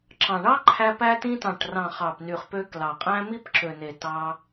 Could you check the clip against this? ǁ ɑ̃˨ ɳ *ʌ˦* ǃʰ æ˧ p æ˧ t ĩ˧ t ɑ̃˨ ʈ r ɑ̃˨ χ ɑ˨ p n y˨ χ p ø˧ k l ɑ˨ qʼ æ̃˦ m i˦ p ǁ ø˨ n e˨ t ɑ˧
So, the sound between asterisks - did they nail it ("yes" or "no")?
no